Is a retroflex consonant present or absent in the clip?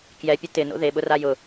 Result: absent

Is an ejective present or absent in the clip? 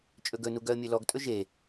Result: present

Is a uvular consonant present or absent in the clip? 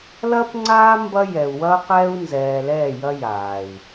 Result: present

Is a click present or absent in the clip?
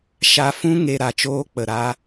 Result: absent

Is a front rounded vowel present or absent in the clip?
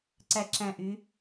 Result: present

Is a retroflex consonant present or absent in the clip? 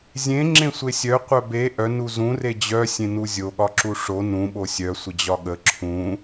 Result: present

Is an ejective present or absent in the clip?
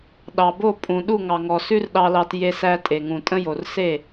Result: present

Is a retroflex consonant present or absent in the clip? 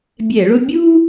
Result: present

